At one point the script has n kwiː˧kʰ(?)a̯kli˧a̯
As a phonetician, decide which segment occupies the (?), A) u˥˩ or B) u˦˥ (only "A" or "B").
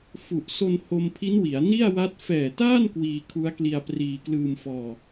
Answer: B